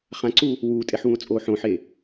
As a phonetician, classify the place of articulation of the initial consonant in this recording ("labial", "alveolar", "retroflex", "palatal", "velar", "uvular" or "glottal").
uvular